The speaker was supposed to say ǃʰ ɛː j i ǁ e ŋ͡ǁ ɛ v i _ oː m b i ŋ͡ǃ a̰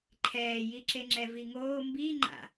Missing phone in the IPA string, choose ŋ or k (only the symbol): ŋ